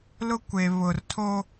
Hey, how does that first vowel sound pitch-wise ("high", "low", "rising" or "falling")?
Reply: high